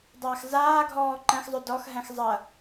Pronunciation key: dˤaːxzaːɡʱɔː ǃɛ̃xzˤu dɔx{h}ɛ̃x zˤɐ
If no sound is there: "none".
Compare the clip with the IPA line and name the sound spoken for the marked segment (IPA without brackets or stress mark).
ɦ